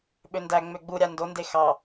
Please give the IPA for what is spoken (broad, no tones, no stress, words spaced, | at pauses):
ɓøndæ ŋ͡møɡ͡bu ɾʲandonde xɑ